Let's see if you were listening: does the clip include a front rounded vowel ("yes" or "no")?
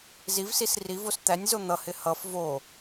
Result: no